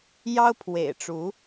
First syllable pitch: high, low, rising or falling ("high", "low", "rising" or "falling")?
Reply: high